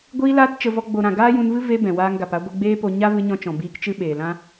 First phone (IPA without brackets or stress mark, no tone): ɡʷ